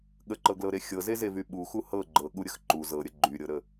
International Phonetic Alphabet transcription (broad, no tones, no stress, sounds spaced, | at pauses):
ɠ ə ǃ ɤ ɡ l ɤ ɾ e xʲ ɤ z e z e v y ɓ u x u h ɤ ɡ͡ǃ ɤ ɠ u ɾʲ ə x ǃ u z ɤ ɾʲ ə ɡ͡ǃ y ɾʲ ɤ ɾ ə